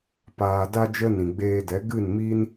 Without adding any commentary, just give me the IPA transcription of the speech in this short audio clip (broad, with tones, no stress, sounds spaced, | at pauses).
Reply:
p aː˨ d a˧ d͡ʒ ə˧ n ĩ˨ ɡ͡b eː˧ d ɛ˨˦ ɡ ɨ˦˨ n m i˦ n